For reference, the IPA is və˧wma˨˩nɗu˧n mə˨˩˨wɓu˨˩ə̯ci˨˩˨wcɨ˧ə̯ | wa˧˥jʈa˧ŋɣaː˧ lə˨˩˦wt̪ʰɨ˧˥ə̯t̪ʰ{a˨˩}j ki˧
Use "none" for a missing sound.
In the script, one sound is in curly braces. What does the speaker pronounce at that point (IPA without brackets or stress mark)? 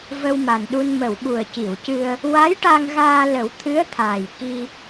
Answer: aː˨˩